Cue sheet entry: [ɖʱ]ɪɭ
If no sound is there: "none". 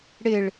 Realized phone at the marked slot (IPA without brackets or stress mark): ɽ